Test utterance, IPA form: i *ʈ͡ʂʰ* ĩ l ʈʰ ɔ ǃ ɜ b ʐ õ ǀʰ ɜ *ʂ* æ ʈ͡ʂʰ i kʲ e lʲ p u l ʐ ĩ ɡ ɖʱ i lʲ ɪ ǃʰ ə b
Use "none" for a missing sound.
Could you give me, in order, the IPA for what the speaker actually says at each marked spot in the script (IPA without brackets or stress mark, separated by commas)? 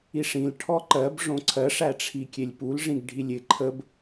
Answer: ʂ, ʂ